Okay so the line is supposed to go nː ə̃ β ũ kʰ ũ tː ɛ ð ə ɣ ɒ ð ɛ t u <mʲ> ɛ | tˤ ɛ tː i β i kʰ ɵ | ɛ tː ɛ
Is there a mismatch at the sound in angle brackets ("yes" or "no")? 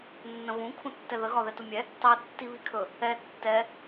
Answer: no